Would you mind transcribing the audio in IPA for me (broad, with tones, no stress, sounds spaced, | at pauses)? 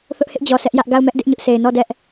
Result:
θ ʊ˦ ʔ h ɪ˦ ʔ d͡ʑ ɔ˨ sʰ ɛ˦ ʔ j ä˦ ʔ ɡ a˦˨ ʊ̯ m ɛ˦ ʔ d ɪ˦ ʔ ɲ ʊ˦ ʔ s e˨ ɪ̯ n ɔ˦˨ d ɛ˦ ʔ